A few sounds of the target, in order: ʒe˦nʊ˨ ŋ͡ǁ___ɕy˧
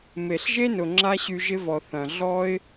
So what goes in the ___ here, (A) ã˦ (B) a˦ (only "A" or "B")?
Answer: B